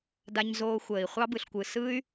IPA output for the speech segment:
d a˧ ɲ z oː˧ xʷ əː˩ i̯ χʷ ɑ˥ b ɯ˩ ɬ kʷ ɯ˩ s ɯ˥ y̯

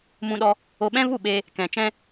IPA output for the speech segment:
m ũ˧ ɗ ɔ˧ | o˧ ɓ ɛ̃˦ v u˦˨ ɓ eː˧ | k ɛ̃˨ t͡ʃ ɛ̃˧

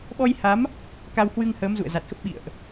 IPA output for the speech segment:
ɓ ɔ˧ j h a˨˦ m | k a˧ w h w ɨ˧ ŋ h əː˨˦ m z ṵ˧˨ ə̯ z a˨˩ t̚ x ə˦˥ p̚ ɓ ḭ˧˨ ə̯ ʔ

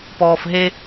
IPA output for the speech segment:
p ɔː f ɦ e

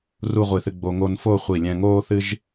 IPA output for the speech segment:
r u˥˧ ʁʷ i˧˩ θ ɨ˧ ɡ͡b o˧ ŋ o˧ n f o˥˧ χʷ i˧˩ lʲ ɛ̃˧ ŋ oː˥ θ ɨ˥ ʒ

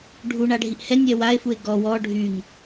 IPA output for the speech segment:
ɖʱ u ɳ a ɖʱ i ʔ h ɛ nʲ ɛ w a e̯ f u e̯ ɡ ɔ w ɔ ɖʱ y ŋ

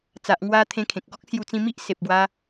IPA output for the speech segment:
t͡s a˨ ʔ ŋ w a˧ t̪ʰ ẽ˧ kʰ ẽ˨ k̚ ɡ ɔ˦ k̚ s j u˧ t͡s ĩ˧ m i˦ ʔ s e˨ p̚ ɡ w a˧

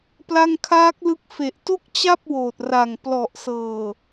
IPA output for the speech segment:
p l a˥˩ ŋ kʰ aː˦˥ k̚ l ɯ˦˥ k̚ f e˨˩ ʔ t o˥˩ k̚ t͡ɕ a˥˩ p̚ w oː˨˩ t̚ r a˨˩ ŋ p l ɔ˨˩ ʔ s ɤː˨˩

